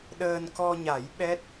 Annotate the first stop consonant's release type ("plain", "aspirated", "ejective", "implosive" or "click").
implosive